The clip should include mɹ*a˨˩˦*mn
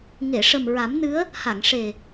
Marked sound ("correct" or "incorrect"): correct